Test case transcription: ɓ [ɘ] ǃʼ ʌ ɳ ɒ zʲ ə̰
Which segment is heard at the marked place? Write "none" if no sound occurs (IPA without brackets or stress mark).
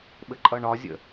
ɘ